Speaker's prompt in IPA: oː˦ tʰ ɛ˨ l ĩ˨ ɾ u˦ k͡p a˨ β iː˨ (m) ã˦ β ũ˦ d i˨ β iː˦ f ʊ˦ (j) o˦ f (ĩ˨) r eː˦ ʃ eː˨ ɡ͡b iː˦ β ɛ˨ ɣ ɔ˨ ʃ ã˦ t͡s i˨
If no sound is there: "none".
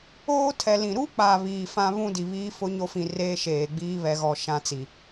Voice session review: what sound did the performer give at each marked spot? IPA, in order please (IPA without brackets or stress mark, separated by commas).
f, ɲ, ĩ˨